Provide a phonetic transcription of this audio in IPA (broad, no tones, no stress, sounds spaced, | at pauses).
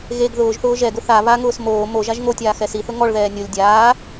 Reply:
ɣ e ɡ ð ʊː ʒ θ ʊː ʒ ɛ ɡ ʊ θ a β a ŋ ʊː s m oː m o ʒ a ʒ ŋ o tʲ aː x ɛ s i θ ʊ ŋ ɔ ɭ ð ɛː nʲ o lʲ dʲ aː